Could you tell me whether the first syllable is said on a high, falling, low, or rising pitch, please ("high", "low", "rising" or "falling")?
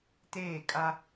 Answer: falling